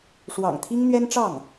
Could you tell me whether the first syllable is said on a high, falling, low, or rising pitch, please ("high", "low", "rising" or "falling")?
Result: low